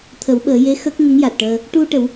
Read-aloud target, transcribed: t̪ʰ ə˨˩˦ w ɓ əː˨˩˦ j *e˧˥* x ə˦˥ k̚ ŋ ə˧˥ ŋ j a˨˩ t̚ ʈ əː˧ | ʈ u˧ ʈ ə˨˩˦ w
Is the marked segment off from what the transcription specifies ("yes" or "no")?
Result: no